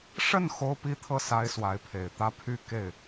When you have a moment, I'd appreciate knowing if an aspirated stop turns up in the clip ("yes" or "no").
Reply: yes